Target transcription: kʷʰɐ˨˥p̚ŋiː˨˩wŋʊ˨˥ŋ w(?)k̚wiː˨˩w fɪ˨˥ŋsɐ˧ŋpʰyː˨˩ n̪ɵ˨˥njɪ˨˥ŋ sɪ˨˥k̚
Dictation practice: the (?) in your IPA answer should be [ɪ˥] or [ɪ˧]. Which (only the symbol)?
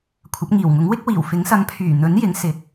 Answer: ɪ˥